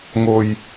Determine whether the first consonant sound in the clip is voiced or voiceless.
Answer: voiced